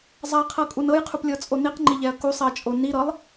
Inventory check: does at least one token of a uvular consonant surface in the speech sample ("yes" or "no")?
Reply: yes